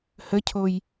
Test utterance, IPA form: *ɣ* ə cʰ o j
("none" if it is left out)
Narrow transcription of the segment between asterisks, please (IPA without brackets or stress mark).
h